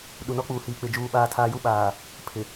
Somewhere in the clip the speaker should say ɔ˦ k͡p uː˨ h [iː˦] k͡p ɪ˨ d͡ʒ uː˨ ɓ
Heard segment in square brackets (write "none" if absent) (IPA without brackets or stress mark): iː˨